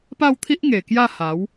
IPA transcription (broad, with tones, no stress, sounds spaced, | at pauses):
p a˥˧ w t̪ʰ i˦ ʔ ŋ e˨˩ k j a˥˧ h a˨˦ w